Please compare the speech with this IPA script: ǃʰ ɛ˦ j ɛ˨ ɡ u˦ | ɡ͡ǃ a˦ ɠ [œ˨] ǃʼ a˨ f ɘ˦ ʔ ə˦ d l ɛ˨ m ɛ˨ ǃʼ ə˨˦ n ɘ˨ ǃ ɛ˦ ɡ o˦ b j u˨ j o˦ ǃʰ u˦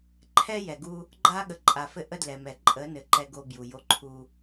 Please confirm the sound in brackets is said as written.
no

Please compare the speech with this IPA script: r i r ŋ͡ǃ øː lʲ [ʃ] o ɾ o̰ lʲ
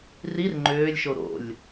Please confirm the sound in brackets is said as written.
yes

